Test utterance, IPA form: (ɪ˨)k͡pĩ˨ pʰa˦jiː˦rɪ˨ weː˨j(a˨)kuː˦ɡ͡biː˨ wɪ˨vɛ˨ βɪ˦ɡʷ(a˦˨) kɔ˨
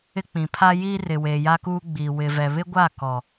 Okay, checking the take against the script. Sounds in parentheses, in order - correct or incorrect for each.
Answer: incorrect: ɪ˦, incorrect: a˦, correct

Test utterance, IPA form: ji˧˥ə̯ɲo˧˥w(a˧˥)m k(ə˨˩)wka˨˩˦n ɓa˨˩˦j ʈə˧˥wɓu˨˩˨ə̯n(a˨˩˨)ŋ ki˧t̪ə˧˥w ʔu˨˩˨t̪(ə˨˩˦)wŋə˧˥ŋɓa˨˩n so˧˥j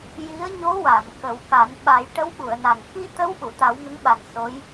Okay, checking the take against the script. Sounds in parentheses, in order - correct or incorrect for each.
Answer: incorrect: a˨˩˨, incorrect: ə˨˩˦, incorrect: a˨˩, incorrect: a˨˩˦

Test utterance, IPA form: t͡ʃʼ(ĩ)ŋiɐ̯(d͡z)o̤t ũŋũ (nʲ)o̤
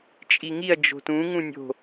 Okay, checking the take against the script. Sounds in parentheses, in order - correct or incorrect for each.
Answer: incorrect: i, incorrect: d͡ʒ, correct

